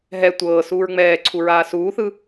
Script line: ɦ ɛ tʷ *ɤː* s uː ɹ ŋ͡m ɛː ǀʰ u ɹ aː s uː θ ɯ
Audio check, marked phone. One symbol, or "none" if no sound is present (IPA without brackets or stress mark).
ɤː